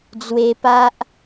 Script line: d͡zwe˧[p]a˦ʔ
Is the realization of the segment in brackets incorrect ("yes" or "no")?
no